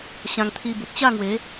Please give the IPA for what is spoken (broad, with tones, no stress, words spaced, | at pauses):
ɕã˧ŋt̪ʰi˧ bu˨t̚ɕa˥˧ŋwe˨˦